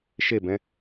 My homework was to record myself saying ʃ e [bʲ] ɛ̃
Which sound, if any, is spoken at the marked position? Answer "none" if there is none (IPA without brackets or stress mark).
b